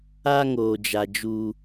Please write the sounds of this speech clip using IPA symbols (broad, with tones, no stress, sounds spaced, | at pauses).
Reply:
a˦ ŋ oː˨ d͡ʒ a˨ d͡ʒ u˦